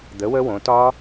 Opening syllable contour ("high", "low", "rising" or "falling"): rising